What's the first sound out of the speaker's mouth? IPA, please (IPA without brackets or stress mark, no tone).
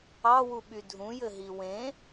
ɑ